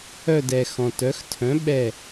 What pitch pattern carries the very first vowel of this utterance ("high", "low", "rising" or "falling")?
falling